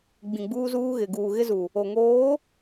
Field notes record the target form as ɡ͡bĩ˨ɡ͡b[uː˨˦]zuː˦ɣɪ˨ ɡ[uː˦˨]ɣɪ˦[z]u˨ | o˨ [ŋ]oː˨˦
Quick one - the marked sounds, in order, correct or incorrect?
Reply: incorrect: uː˦, incorrect: uː˨, correct, correct

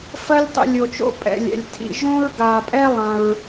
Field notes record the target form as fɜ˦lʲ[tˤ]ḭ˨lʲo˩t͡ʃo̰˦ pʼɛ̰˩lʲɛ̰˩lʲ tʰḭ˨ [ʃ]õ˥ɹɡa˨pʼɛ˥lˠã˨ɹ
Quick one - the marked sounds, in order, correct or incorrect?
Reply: correct, incorrect: ʒ

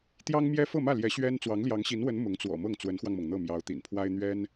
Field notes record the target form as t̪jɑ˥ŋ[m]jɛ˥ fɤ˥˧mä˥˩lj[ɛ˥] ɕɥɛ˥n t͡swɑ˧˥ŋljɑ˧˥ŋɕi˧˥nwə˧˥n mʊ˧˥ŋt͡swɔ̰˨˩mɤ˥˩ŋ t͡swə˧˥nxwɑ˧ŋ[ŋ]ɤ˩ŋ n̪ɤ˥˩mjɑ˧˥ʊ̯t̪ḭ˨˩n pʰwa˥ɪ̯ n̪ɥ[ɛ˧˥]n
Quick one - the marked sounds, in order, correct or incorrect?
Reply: correct, incorrect: ɛ˧˥, incorrect: m, incorrect: ɛ˥

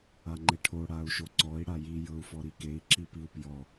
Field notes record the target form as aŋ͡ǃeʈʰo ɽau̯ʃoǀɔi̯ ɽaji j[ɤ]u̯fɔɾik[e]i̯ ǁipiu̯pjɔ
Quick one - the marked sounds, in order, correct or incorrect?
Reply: correct, correct

